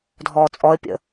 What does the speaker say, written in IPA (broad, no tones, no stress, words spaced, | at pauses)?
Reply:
dʱɔːt͡sʼɔə̯pʲə̰